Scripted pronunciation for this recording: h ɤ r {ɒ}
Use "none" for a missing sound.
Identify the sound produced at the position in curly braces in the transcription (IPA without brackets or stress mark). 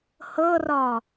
ɒ